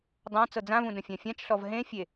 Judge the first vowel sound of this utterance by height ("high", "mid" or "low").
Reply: low